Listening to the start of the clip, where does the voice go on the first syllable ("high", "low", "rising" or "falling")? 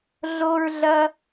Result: high